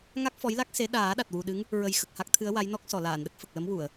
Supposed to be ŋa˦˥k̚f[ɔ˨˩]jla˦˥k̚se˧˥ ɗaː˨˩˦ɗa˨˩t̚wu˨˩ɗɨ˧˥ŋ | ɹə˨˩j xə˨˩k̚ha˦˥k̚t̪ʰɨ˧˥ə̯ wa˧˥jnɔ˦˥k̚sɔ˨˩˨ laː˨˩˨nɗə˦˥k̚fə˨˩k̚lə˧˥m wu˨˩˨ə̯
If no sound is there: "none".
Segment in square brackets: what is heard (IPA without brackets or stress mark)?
ɔ˧˥